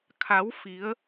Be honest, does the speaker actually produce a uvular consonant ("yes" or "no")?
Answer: no